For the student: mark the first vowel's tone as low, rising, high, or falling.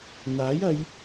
rising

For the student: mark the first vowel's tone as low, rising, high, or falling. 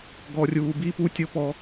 low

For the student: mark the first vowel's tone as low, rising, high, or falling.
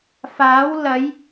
rising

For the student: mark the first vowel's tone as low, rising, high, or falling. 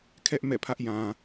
high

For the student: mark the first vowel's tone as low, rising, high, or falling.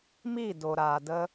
falling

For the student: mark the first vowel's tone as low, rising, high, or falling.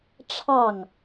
falling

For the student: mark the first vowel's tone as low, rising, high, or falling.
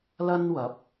high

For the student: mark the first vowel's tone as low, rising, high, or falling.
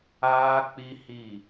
high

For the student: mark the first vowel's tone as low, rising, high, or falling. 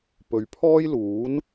low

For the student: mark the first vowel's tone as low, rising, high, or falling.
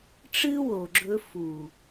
high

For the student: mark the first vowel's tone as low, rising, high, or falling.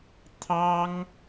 high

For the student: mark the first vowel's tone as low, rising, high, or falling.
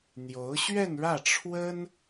rising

